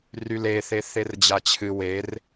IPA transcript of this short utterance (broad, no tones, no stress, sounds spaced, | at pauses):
r y l e θ e θ e r d͡ʑ a t͡ɕʰ ɨ w e r